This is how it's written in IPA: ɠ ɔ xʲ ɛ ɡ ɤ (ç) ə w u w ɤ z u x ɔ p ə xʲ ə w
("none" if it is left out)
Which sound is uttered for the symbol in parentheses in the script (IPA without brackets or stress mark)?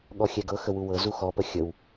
x